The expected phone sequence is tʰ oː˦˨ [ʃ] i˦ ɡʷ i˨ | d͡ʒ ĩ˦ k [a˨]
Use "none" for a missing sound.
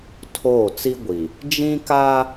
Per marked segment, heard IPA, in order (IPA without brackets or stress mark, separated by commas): t͡s, a˦